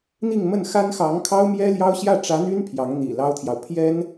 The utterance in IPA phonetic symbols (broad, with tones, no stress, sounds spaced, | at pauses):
n̪ i˥˧ ŋ m ə˥˩ n x a˥ n x ɑ˧˥ ŋ kʰ ɑ˥ ʊ̯ m j ɛ˥ l j ɑ˥ ʊ̯ ɕ j ä˥˩ ʈ͡ʂ ä˧˥ n̪ y˥ n pʰ j ɑ˧˥ ŋ n̪ ḭ˨˩ l ɑ˥ ʊ̯ t̪ʰ j ɑ˨ ʊ̯ pʰ j ɛ˥ n